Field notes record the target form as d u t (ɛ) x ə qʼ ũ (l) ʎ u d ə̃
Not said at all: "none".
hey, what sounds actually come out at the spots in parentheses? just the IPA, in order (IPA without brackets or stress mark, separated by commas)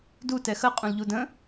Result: ɛ, l